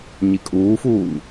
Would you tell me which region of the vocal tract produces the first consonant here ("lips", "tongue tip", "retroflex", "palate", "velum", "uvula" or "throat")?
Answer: palate